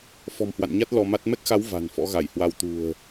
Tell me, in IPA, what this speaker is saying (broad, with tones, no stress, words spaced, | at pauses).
fɔ̤˨˩mhwa̰˧˨nɲa˦˥t̚ lɔ˧ma˦˥t̚ mɛ˦˥k̚xa˨˦w va̤˨˩n fɔ̰˧˥ɣa˧˩jhwa˧w t̪ṳ˨˩ə̯